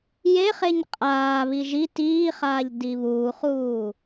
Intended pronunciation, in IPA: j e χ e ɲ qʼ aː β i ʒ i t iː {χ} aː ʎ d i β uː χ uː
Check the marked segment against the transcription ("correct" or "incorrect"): correct